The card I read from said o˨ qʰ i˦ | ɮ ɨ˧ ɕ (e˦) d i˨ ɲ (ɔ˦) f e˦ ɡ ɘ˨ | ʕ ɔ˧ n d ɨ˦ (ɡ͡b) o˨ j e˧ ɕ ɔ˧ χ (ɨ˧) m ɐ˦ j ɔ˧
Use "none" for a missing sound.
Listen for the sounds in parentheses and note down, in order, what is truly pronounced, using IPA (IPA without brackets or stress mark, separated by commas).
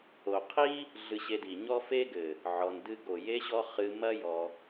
e˧, ɔ˦, ɡ, ɨ˧